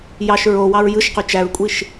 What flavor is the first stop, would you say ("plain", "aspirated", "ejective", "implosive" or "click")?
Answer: plain